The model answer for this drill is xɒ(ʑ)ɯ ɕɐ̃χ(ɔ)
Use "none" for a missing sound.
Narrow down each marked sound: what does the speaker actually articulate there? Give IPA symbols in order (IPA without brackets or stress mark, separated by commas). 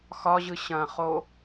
ʑ, o